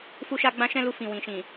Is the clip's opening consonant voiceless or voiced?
voiceless